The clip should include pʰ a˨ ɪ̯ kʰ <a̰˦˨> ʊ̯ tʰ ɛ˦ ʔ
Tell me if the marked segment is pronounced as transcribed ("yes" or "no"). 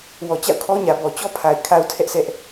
no